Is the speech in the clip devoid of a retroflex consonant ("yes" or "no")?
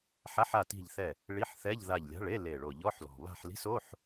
no